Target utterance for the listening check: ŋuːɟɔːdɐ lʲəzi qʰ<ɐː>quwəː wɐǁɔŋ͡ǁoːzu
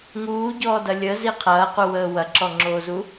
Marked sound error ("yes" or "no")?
no